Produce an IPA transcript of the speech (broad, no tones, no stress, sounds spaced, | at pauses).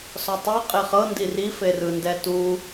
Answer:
s ɔ tˤ ɤ qʼ e χ ɤ n d i r i f e r ɯ n d ɛ t u